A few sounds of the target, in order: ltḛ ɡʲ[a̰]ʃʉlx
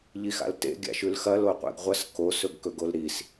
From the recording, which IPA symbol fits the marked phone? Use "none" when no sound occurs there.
a̰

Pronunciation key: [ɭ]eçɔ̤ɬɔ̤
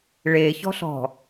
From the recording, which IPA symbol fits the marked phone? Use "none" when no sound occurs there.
ɭ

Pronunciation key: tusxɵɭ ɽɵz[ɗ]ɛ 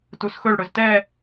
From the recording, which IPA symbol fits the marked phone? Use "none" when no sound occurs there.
t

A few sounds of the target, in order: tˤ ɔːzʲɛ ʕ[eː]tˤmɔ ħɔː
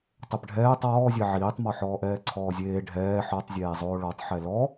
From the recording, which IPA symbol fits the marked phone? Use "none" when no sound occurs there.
iː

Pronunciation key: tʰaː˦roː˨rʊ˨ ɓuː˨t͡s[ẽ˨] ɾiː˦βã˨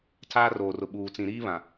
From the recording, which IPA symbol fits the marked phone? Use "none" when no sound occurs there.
ĩ˨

